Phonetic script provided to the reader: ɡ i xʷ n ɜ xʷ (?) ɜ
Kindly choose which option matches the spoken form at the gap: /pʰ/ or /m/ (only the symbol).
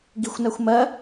m